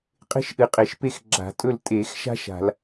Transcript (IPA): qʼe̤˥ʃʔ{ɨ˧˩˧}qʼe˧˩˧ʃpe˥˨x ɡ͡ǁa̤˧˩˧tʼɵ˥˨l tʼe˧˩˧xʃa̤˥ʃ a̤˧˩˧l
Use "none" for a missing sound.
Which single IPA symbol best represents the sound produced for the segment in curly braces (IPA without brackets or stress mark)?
ɨ˧˩˧